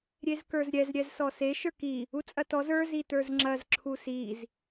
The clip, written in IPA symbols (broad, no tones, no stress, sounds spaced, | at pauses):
ɾʲ e z k ə˞ z ɾʲ ɛ z ɾʲ ɛ z s ɔ s e ʃ ə˞ k i | u t͡sʼ ɐ t ɔ z ə˞ z i t ə˞ z ŋ͡ǁ ɐ z ǁʰ u s i z